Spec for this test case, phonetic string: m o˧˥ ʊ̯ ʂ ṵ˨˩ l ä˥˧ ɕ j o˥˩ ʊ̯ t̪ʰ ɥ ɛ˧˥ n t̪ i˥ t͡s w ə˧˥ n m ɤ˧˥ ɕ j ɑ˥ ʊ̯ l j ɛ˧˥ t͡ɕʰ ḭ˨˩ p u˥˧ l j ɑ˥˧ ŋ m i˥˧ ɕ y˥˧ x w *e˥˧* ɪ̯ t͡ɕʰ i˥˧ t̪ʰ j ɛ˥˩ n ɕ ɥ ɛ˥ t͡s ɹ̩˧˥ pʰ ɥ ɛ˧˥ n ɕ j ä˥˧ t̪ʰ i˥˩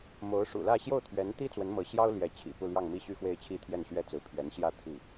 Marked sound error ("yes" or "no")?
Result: no